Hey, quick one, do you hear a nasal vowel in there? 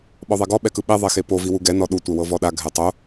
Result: no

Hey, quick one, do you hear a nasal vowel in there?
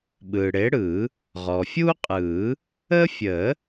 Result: no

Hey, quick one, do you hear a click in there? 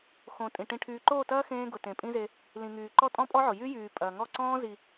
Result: yes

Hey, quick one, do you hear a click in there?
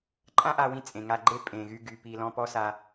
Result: yes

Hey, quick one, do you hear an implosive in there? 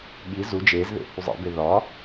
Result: yes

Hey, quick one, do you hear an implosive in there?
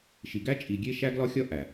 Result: no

